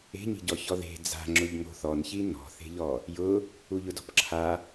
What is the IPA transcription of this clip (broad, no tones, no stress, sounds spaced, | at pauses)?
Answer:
e̤ ɲ i̤ ɟ ɔ ç ɔ ð e̤ d͡z a̤ ŋ͡ǁ ʊ ʎ ŋ o̤ θ ɔ n ç i n ɔ̤ θ e̤ ʎ ɔ | j ʊ | u ʎ ʊ d ɔ̤ p ǁʰ a